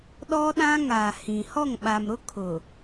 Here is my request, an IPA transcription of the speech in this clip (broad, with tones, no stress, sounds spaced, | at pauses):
ɗ ɔ˦ ɗ ã˦ ŋ a˨ h ĩ˨ h ɔ˦˨ ŋ ɓ a˨ m ɾ ʊ˦ kʰ ʊ˨